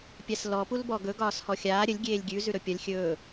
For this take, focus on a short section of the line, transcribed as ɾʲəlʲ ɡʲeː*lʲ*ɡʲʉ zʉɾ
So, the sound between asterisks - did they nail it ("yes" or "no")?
yes